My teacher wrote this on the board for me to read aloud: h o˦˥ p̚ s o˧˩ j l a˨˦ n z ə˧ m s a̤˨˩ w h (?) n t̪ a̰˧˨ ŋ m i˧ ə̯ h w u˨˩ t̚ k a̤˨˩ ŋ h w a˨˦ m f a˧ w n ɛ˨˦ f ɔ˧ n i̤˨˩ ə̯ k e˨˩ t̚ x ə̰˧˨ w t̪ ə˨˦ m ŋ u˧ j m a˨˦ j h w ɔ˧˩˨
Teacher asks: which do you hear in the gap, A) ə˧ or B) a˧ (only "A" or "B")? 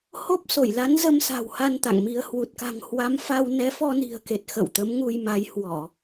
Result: B